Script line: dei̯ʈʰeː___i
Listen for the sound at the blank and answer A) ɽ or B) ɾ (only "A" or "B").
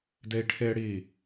A